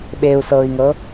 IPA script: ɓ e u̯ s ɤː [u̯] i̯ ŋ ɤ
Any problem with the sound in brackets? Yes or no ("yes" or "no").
yes